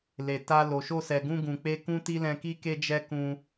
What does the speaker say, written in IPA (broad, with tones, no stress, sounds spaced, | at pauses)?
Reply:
l e˨ t a˧ l o˨ ʃ o˧ s ɛ˨ ɡ ũ˧ ɡ ũ˨ k͡p e˧ k ũ˦ t i˦ l ɛ̃˧ k i˦ k e˧ d͡ʒ ɛ˧ k ũ˧